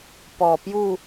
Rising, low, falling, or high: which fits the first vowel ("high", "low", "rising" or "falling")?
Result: low